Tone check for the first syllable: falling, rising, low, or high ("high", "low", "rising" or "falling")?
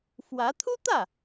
rising